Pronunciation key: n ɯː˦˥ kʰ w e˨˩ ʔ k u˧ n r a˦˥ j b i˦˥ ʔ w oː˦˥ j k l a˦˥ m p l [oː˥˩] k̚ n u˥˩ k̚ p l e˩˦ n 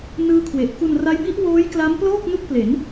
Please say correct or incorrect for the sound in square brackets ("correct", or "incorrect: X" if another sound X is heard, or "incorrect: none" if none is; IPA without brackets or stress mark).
correct